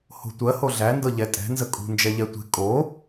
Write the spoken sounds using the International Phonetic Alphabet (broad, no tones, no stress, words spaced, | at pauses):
ho̤tʷɜ hoɮæ ndɤʎɛtʼɛ̤ nzəkʼṳ nd͡ʒɛʎɛtʷe̤ kʼo